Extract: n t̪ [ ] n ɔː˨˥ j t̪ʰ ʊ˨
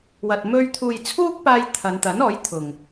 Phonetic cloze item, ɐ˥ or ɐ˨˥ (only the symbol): ɐ˨˥